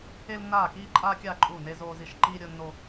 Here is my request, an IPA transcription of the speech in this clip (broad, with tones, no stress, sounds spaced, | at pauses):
e˥ l nː aː˥˧ k iː˥ ǃʼ aː˥ kʲ aː˥˧ ǃʼ uː˥˧ n e˥ z oː˥ z i˥˧ ʃ ǃ iː˥ ɾʲ ʊ˥ nː o˥